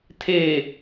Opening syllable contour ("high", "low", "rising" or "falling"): low